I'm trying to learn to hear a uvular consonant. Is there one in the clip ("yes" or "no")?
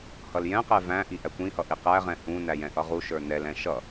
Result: yes